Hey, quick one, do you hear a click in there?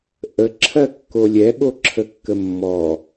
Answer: yes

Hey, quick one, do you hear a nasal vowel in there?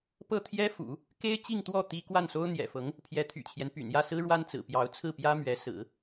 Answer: no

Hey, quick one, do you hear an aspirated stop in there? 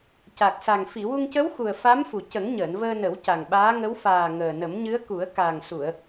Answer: no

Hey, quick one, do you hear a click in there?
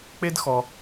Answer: no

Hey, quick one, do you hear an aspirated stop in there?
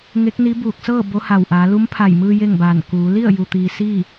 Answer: yes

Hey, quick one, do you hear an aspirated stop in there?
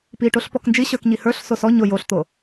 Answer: no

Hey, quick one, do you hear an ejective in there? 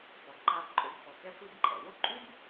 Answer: yes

